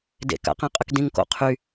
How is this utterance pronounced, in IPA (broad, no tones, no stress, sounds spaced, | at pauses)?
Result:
d ḛ k a̰ q æ̃ qʼ ə k d ĩ ŋ k o̰ qʰ y